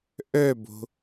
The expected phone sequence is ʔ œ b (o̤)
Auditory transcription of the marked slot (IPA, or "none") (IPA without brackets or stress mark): o̤